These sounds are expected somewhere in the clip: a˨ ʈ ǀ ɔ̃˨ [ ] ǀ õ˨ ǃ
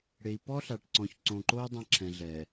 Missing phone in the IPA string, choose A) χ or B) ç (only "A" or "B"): B